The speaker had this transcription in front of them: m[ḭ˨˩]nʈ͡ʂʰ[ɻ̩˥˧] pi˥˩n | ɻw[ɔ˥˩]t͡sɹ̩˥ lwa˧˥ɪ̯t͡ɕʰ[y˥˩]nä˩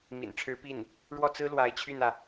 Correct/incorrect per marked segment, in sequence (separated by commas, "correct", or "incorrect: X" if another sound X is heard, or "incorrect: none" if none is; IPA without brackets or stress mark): correct, incorrect: ɻ̩˧˥, correct, correct